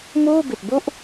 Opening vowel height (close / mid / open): close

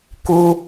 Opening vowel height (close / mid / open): close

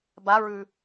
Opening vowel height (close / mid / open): open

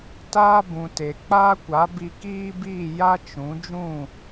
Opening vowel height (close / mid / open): open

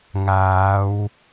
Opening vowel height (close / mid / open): open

